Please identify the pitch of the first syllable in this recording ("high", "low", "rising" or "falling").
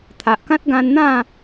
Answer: low